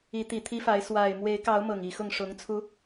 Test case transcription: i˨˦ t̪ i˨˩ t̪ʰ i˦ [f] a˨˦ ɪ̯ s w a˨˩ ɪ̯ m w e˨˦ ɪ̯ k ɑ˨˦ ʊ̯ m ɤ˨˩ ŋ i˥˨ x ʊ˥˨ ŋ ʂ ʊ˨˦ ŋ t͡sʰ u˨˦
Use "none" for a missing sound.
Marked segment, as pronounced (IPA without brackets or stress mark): f